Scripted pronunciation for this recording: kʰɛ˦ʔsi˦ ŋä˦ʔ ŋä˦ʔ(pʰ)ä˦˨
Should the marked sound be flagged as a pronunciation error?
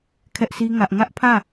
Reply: no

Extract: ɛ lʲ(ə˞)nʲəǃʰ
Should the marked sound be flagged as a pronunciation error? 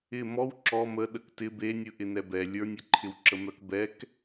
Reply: no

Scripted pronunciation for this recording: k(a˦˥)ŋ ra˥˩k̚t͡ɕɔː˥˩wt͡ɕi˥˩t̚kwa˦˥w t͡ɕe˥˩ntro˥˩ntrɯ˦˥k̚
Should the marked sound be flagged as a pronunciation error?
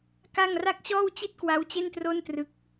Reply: yes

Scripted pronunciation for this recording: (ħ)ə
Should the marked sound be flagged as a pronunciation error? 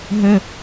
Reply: yes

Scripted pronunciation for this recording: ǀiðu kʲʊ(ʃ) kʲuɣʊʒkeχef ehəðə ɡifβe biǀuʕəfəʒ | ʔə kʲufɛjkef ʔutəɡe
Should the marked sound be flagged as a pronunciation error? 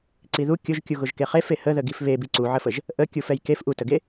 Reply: yes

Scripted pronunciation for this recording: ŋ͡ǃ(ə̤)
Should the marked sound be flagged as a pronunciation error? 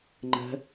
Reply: no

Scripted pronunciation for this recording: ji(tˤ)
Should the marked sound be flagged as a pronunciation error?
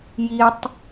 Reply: no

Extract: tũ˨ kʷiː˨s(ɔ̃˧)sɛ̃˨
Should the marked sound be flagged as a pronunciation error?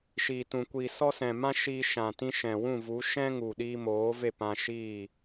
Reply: yes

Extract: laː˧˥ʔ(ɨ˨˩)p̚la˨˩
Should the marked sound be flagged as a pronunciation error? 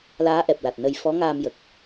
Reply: yes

